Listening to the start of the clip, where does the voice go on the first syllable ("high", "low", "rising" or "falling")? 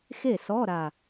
falling